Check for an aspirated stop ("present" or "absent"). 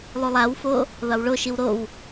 absent